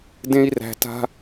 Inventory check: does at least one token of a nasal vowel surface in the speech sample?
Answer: yes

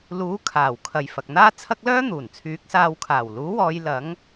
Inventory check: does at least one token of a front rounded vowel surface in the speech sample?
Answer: yes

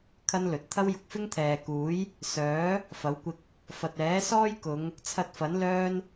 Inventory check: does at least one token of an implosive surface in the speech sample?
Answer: no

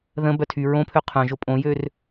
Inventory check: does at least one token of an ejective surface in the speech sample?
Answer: yes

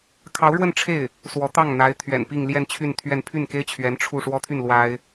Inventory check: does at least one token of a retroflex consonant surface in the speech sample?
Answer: yes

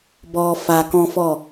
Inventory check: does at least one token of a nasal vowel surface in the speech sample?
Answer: yes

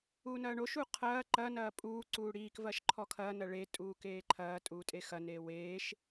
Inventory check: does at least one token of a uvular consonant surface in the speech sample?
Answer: yes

